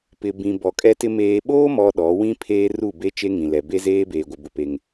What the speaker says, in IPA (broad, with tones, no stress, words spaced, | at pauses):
pɪ˨ bĩ˨ bɔ˨kʼɛ˦tɪ˦ meː˨ɓoː˦ mɔ˦ɗɔ˨˦ wĩ˦pʰeː˦ ru˦˨be˦ t͡ʃe˦ŋĩ˨lɛ˨ be˦zeː˦beː˨ɡʷɪ˨ bʊ˦pe˦ŋ